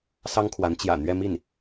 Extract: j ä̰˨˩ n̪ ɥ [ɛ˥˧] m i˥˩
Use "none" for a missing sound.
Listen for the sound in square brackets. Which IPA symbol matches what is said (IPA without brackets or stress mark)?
ɛ˥˧